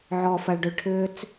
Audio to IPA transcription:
ʕɔfɐɭɖʏɭʈʰʏːt͡s

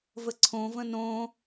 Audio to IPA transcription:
vəǀʰõvə̃ nõ

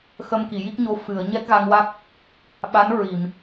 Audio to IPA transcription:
xə˧mki˨˩˨ji˦˥k̚ɲo˧˥ fɨ˨˩˨ə̯ ɲɛ˦˥k̚ɣa˧ŋwa˦˥k̚ | ɓa˧˥n ɹi˨˩˨m

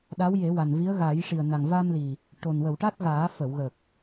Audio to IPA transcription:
ɗa˧˥wje˨˩˦wa˨˩nvi˧˥ə̯ ɣa˨˩˦jʂi˨˩ə̯na˨˩ŋ va˧mli˨˩ | ʈo˨˩n wə˨˩˨wʈa˦˥t̚ ɣaː˨˩˦ fə˨˩˨wɣə˨˩k̚

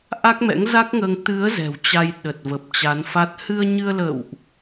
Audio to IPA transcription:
ʔa˦˥k̚mɛ̰˧˥ŋza˦˥k̚ŋəː˧ŋ t̪ɨ˨˦ə̯ zɛ̤˨˩wt͡ɕa˧j ɗə˨˩t̚və˨˩p̚t͡ɕa˨˦nfa˦˥t̚ hɨ˧ə̯ɲɨ˧ə̯lə̰ː˧˨wʔ

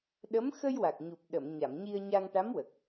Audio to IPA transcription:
ɗə˧˥m xə˧jwa˨˩k̚ ɲu˨˩p̚ɗə˨˩˨m ɲa˨˩˨mɲi˧ə̯ɲa˧ŋ ʈa˧˥mwə˨˩k̚

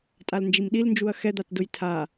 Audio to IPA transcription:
tʼalnd͡ʒimɗilnd͡ʒuɐ̯ xɛd̪atdʊj tʰa

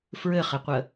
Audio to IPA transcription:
fɹɘχɘqʷə

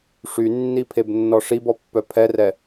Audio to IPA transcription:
ʂynːi pʰebnːɔʂibɔ pːœpʰɛrɛ

